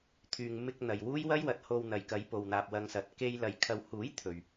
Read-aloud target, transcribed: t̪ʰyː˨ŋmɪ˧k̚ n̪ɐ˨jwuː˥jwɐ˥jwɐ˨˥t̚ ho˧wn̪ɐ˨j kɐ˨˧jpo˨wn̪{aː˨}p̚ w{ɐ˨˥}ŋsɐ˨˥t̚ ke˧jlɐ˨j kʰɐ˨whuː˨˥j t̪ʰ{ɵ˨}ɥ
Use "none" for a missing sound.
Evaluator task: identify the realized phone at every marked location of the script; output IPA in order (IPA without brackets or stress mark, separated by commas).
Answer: aː˨, ɐ˧, ɵ˨